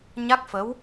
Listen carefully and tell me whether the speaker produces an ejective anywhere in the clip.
no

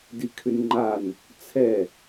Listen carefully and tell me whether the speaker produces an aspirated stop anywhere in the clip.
yes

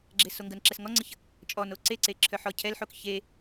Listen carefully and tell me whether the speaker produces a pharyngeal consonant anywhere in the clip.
yes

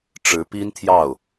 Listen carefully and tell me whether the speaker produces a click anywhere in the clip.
no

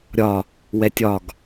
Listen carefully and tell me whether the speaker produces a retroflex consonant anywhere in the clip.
no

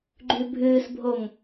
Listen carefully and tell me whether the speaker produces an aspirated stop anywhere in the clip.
no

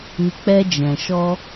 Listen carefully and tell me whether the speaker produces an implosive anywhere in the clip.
no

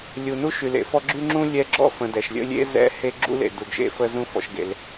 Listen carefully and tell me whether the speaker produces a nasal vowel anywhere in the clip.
yes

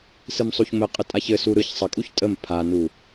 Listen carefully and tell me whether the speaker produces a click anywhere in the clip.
no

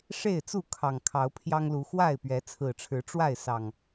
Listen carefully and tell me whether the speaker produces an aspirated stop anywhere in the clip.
yes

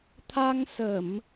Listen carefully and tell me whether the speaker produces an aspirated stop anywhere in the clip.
yes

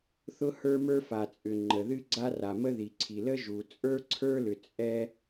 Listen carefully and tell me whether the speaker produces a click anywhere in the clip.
yes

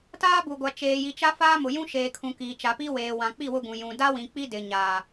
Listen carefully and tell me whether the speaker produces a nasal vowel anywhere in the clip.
yes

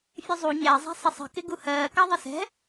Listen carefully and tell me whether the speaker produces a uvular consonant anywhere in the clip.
no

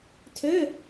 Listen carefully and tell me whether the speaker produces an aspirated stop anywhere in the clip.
yes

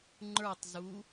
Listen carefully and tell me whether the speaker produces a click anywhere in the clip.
yes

